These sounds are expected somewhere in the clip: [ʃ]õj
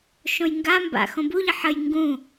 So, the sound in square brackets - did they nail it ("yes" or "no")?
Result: yes